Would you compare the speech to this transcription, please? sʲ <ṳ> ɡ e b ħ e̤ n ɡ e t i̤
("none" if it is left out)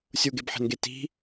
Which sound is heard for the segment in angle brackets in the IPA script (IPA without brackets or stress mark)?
u